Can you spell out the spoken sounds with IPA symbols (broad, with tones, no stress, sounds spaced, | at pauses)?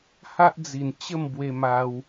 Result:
h a˦ ʔ d͡z i˨˩ n t͡ɕ ə˥˧ m b w e˧ m a˧ w